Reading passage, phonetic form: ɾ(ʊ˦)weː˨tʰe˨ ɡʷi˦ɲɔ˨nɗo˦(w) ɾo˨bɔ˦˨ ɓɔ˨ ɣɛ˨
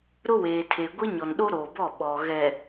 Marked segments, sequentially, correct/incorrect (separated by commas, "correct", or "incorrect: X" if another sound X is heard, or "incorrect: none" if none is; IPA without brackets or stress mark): correct, incorrect: none